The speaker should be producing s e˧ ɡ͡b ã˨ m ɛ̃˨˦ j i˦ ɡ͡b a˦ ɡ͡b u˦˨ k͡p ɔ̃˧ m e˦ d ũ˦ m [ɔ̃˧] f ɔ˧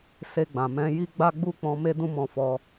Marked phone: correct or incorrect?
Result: correct